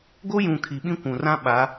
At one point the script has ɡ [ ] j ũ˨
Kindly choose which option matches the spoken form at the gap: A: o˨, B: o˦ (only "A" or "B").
B